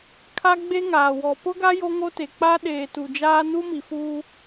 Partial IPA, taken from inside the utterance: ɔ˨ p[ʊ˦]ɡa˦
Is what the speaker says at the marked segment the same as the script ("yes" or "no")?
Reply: yes